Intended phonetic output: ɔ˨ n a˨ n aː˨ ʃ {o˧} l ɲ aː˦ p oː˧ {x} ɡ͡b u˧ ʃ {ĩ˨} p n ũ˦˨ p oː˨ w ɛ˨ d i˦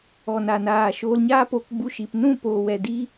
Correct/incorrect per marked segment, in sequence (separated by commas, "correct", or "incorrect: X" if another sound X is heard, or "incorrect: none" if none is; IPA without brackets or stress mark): incorrect: oː˧, incorrect: k, incorrect: i˨